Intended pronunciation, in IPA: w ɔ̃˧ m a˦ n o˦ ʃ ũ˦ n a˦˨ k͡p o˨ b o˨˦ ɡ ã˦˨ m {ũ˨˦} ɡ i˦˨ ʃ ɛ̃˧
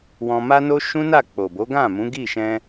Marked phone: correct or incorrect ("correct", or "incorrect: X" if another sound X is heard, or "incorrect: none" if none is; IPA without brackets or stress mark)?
correct